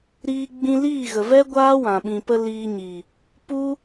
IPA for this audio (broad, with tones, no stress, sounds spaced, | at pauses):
ɾ iː˧ ɡ͡b ĩ˧ l iː˦˨ ɣ ə˨ v ɛ˦ ɡʷ aː˦ w ã˨ ɓ ĩ˨ p ə˧ l iː˧ ɲ i˨ | p u˦